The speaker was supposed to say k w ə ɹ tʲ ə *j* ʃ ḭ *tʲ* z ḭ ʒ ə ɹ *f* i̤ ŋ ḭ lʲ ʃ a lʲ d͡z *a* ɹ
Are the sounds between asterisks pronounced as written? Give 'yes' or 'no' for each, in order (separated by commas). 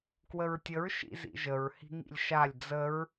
no, no, no, no